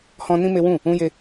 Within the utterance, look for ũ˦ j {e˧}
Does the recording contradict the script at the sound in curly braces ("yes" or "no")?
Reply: yes